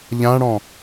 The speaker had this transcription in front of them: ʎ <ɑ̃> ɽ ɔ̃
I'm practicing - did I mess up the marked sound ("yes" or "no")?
yes